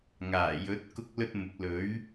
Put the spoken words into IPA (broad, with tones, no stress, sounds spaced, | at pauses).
ŋ aː˨˩ j ɵ˨˥ t̚ k ʊ˥ k̚ l ɵ˥ t̚ m ʊ˨˥ k̚ l ɵ˨˥ ɥ